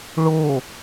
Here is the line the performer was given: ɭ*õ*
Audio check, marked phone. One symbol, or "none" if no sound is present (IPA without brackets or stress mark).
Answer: o